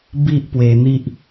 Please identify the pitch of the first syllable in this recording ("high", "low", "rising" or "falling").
high